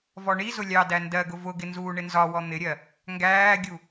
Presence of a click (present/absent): absent